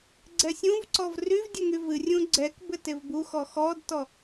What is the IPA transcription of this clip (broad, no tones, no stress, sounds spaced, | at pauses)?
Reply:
ɡ͡ǀ ɛ sʲ ũ v ǀ ɔ v r y v dʲ ə ŋ y v ɨ rʲ ũ ɡ͡ǀ ɛ k b ɘ t e v b u x ɔ x ɔ d t ɔ